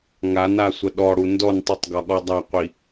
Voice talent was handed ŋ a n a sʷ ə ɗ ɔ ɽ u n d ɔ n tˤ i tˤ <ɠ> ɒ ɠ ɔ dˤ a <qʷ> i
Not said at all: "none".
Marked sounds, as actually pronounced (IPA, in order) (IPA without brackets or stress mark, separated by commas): ɡ, qʷ